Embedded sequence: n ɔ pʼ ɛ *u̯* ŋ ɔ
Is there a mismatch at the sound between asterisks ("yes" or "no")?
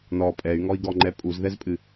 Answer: yes